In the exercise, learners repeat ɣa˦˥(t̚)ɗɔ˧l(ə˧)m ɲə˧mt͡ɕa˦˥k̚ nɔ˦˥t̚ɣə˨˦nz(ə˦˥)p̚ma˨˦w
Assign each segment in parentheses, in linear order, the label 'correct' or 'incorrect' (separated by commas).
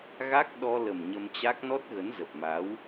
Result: incorrect, incorrect, incorrect